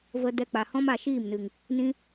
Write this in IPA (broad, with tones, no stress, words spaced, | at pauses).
və˧ dɛ˧k͡pa˨hɔ̃˦m a˨ ʃiː˦˨mnɨ˨ŋ | nĩ˧